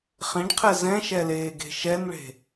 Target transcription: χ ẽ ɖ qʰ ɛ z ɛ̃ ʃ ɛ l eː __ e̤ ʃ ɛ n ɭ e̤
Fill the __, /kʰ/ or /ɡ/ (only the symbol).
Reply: ɡ